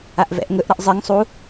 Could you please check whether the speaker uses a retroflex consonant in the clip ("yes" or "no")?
no